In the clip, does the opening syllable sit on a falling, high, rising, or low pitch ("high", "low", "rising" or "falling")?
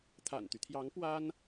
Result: low